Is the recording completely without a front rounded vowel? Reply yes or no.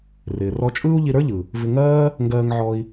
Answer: yes